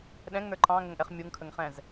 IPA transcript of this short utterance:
ɗ ɛ̃ ŋ n ə˞ ǃ ɑ̃ ŋ ə ŋ ʔ ɛ χ mʲ u ŋ kʰ ə ŋ χ ɛ̃ z

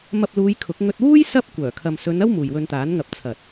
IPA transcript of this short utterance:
m ɐ˧ p̚ l uː˨˧ j kʰ ʊ˨˥ k̚ ŋ ɵ˧ t̚ w uː˥ j s ɐ˥ p̚ kʷ œː˨˩ kʰ ɐ˨ m s ɵ˨˧ n ɐ˥ w m uː˨ j w ɵ˧ n t̪ aː˨˥ n ŋ ɐ˨ p̚ t͡sʰ ɐ˨ t̚

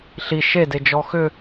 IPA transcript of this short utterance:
ɬ i ʃ e d e d͡ʒ ɔ x ʏ

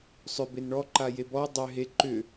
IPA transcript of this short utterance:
sˤ ʏ b e n ɳ ɔ ǃ a j e b ɔ dˤ ʏ ɦ e ǃ ʏ

